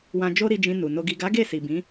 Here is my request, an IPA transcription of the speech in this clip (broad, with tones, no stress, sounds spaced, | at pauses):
w ã˧ d͡ʒ o˦ ɾ i˧ d͡ʒ ĩ˧ n u˨ n o˨ ɡ i˨ ɡ a˨˦ ɡ e˦˨ s i˨ b ĩ˨˦